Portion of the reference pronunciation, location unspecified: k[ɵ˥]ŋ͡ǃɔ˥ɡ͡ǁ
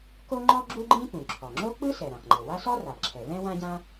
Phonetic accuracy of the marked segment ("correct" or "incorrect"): incorrect